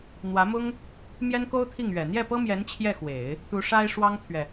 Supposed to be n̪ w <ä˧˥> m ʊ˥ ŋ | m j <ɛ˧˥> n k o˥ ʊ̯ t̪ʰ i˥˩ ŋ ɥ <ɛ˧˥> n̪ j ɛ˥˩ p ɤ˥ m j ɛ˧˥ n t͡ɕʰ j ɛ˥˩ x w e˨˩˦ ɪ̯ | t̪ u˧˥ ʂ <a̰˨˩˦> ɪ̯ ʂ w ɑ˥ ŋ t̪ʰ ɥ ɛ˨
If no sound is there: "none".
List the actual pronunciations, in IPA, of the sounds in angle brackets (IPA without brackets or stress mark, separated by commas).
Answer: ä˧˥, ɛ˥, ɛ˨˩, a˥